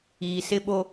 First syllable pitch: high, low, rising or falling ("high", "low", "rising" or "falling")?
low